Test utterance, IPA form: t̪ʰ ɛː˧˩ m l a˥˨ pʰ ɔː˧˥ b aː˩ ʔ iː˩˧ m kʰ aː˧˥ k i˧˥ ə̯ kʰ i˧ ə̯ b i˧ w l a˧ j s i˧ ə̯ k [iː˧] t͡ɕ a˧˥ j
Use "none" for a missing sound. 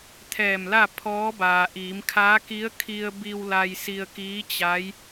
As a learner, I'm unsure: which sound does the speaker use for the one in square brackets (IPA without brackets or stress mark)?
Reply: iː˧˥